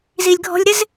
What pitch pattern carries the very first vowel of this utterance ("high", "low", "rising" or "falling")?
low